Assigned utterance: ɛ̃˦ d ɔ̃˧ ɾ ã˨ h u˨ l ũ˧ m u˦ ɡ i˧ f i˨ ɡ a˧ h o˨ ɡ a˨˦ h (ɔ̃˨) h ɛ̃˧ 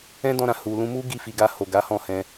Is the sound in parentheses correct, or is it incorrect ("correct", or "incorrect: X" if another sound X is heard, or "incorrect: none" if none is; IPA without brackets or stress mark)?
incorrect: ɔ̃˦˨